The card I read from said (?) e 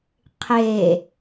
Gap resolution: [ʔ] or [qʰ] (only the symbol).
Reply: qʰ